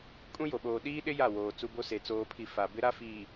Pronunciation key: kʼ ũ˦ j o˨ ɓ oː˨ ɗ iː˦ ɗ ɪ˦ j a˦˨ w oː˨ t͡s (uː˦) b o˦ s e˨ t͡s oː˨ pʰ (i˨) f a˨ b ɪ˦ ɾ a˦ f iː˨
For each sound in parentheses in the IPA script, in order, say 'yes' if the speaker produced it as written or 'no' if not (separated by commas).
no, yes